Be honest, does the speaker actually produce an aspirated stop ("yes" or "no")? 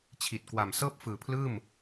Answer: yes